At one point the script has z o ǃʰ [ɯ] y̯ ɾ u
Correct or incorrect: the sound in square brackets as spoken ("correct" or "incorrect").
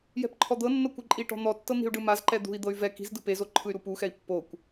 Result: correct